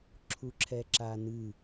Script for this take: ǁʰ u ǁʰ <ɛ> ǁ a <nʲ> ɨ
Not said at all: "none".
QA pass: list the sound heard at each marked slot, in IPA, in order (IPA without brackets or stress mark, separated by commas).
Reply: ɛ, n